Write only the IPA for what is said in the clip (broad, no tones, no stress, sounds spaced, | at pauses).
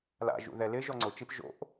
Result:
l a̰ ʒ ṵ ð ɛ l ɪ ʒ ɔ ŋ͡ǀ ʊ t͡ʃ i p ʒ o̰ ʔ